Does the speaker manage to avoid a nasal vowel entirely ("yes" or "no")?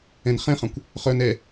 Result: no